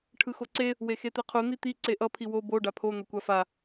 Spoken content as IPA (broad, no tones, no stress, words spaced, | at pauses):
ʈʰɯxoǀe | wexet̪ɛqʰu n̪it̪i ǀeʔʌ pʰiwo bo ɖapʰo n̪ʌkʷafa